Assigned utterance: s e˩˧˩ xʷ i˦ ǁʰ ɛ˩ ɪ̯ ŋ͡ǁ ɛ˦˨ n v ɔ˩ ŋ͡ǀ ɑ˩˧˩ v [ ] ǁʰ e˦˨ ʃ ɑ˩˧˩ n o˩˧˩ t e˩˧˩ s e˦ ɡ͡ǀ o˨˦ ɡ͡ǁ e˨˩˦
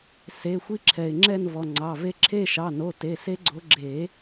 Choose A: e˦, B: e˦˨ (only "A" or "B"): A